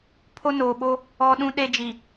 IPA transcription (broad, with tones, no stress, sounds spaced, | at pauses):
pʰ o˦ n oː˨ ɓ o˦ | ɔ˦ ɗ ũ˦ ɗ e˦ d͡ʒ i˨